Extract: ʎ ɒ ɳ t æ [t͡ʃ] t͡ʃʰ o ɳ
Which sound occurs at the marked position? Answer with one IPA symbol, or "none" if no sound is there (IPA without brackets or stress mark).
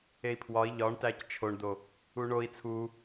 c